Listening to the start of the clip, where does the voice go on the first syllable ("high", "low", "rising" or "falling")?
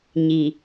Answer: low